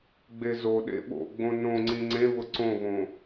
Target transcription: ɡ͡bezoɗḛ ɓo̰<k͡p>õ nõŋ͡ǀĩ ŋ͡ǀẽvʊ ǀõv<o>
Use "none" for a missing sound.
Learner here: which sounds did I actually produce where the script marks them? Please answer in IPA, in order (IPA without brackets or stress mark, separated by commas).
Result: ɡ͡b, õ